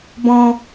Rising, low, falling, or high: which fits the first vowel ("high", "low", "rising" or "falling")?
high